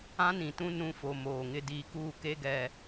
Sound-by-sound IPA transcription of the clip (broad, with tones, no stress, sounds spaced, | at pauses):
ã˦ n ĩ˨ t ũ˦ n ũ˦ f o˨ m oː˨ ŋ ɪ˦ d iː˦ k uː˦ k e˦ ɡ ɛ˨